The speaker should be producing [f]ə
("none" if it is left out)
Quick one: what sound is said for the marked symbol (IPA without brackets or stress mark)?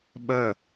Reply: ɓ